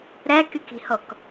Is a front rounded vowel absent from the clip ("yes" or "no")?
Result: no